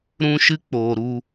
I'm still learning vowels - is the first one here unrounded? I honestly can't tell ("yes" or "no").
no